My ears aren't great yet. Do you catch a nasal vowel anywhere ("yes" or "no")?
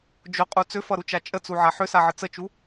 no